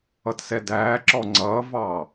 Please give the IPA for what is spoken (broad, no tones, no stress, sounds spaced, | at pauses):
ʌ t s ɛ d æː ǁ ɔ ŋ͡ǀ ʌː v ɑː